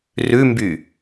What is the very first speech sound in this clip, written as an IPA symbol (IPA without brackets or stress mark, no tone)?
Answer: r